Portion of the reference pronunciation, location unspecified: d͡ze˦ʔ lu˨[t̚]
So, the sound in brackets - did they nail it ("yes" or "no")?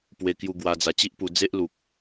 no